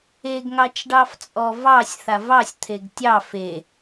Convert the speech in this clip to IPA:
e ɡ ŋ ɑ t͡ʃ ɖ ɑ f t͡sʼ ɔ v ɑ sʲ θ a v ɑ sʲ t̪ʰ e ɡ tʲ ɑ f e

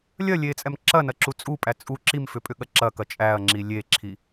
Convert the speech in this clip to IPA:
lʲ ɐ lʲ e t͡sʼ ɛ m ǁ ɐ n ɐ ǁ u t͡sʼ u pʼ æ t͡sʼ u ǁ i m f ʏ pʼ ʏ ɠ ɐ ǁ ɐ k ɐ t͡ʃʼ æ ɐ̯ ŋ͡ǁ i lʲ e ǁʰ i

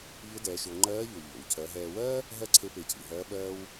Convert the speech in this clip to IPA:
ʎ ʊ˧˥ d ɛː˩˧ ʃ ʊː˩˧ ŋ͡ǃ ɜː˧˥ ʎ o˩ ʎ o̰˩ w cʰ ɜ˩˧ ɦ ɛː˧ w ɜː˥ | ɦ ɜ˥ ǀʰ e˧˥ p e˩˧ cʰ ḭ˩ ɦ ɜː˧˥ ɓ ɜː˧ w

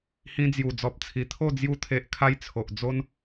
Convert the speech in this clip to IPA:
h ĩ˧ d͡z j u˨˩ d͡z ɔ˨ p̚ t͡sʰ i˨˩ t̪ʰ o˥˧ d͡z j u˧ t̪ʰ e˨ ʔ kʰ a˧ j t͡sʰ o˨ ʔ d͡z o˦ n

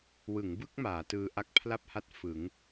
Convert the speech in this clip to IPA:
w ɯ˩˦ ŋ b ɯ˥˩ k̚ m aː˩˦ t ɯː˧ ʔ a˦˥ k̚ pʰ l a˥˩ p̚ h a˦˥ t̚ f ɯ˩˦ ŋ

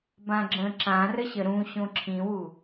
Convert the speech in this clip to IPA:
b ã ɡ͡ǁ ə̃ ǁ ã r ə ɕ ə ɾ ũ ɕ õ ǁʰ ĩ w u

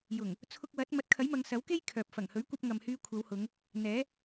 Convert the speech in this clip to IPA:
j ʊ˨˩ ŋ | t͡sʰ ʊ˧ k̚ w ɐ˨˥ t̚ m ɐ˨˥ t̚ kʰ ɐ˨˥ j m ɐ˨˧ ŋ s ɐ˨˥ w k e˥ j kʰ œː˨ p̚ f ɐ˨˩ ŋ h ɵ˨˥ ɥ kʷ ɐ˧ p̚ ŋ ɐ˨ m h yː˧ kʷʰ ɐ˨˧ w h ʊ˨˧ ŋ | n̪ ɛː˨˥

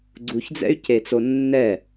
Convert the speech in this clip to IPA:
ɡ͡ǀ u ç d͡z ɛ̰ y̯ c e t͡s o nː ɛ

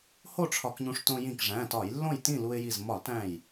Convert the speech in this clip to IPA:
h o˥˨ ʈ͡ʂʰ ɒ˧˩˧ k ɲ ũ˧ ʂ t õ˧ j ĩ˧˩ k ʐ æ̃˩˧˩ t ɒ˧˩˧ j lː õ˥˨ j t ĩ˥˨ l u˧ ɪ̯ j i˧˩ z m ɒ˧˩˧ l t æ̃˧˩ j

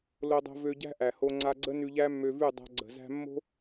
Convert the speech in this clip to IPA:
l o˧ dˤ o̤˧ v ø˧ ɟ æ̤˦ ʔ æ˨ h o˧ ŋ͡ǀ a˧ ɡ͡ǀ ə˦ n ʉ˧ ʎ æ˦ mː ø˧ v ʉ˦˨ dˤ a̤˧ ɡ͡ǀ ə̤˨ z æ̤˧ mː o̤˦

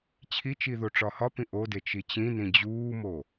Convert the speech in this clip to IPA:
t͡ɕʰ i t͡ʃ i ð o ʈ͡ʂ ɒ h ɒ p ĩ ʔ o d e t͡ʃ i t͡ɕ ĩ n ĩ d͡ʑ uː m o

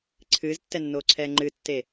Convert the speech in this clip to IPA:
ǀʰ ɨː z tː ɛ nː oː ǀʰ ɛː ŋ͡ǃ ɨ tː e

